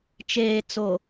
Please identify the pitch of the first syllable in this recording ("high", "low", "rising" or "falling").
low